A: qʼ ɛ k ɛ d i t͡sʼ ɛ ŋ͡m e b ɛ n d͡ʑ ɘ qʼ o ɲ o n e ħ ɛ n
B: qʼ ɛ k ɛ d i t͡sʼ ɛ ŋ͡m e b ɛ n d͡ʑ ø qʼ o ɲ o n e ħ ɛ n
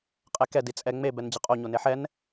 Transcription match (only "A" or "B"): A